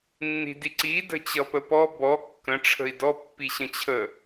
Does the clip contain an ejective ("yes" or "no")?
no